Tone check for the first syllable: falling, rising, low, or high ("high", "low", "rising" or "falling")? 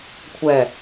low